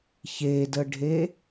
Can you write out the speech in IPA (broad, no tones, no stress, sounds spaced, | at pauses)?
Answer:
ç e d ə ɖʱ e